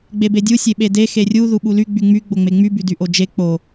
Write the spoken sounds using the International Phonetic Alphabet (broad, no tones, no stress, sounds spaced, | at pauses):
ɡ͡b e b e dʲ u sʲ e ɓ e d e x e rʲ u ð u ɓ u l y ɡ͡b y ŋ͡m y ɡ͡b o ŋ͡m e ŋ͡m y b y d y ʔ o d͡ʒ e k͡p o